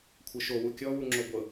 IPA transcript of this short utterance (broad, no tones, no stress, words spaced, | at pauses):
kʷʰɤʃo wukʲɔ wuŋ͡ǁoɡʷɤ